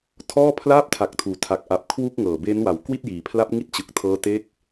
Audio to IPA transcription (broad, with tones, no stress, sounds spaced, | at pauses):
tʰ ɔː˥˩ pʰ l aː˥˩ p̚ tʰ a˨˩ k̚ tʰ uː˩˦ tʰ a˨˩ k̚ ʔ a˨˩ p̚ kʰ w u˥˩ k̚ ŋ ɤː˨˩ b eː˦˥ n w a˩˦ w k w i˥˩ t̚ j iː˩˦ pʰ l a˦˥ p̚ ŋ i˦˥ t̚ t͡ɕ ɯ˨˩ k̚ tʰ ɤː˦˥ t e˥˩ k̚